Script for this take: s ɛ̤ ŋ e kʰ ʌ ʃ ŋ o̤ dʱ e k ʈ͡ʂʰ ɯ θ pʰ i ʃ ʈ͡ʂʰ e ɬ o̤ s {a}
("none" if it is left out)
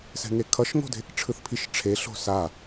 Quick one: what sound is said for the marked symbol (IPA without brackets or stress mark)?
a